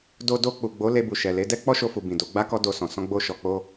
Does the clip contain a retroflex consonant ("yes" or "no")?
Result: no